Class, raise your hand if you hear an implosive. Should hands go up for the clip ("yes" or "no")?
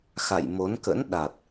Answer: yes